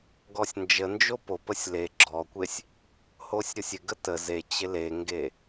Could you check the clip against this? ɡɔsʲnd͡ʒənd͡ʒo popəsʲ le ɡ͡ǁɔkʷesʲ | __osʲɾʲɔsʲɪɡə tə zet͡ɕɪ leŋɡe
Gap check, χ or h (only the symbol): h